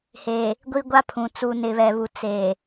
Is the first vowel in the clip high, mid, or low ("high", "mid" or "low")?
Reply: mid